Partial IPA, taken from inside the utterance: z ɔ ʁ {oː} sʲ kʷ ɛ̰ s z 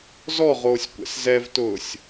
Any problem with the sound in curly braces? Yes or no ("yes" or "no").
no